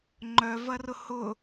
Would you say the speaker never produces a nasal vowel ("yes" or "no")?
yes